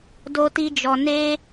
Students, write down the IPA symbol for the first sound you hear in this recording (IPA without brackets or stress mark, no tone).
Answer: d